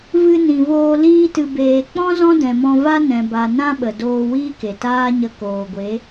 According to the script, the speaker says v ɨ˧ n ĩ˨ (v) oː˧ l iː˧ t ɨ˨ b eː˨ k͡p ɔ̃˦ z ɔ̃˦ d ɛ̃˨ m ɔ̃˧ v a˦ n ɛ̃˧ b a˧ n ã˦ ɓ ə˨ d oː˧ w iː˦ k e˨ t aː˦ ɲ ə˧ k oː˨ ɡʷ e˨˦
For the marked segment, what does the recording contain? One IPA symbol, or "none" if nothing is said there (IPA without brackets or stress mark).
v